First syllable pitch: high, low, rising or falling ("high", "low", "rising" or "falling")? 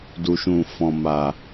low